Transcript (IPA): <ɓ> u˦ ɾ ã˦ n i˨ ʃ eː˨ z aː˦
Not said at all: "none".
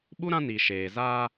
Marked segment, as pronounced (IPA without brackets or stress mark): ɓ